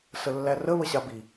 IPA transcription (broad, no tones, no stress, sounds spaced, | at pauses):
s ə lː æ r ə β ə ɕ a b i